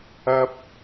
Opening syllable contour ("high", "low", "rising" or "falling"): high